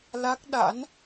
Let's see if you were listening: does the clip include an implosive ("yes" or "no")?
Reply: yes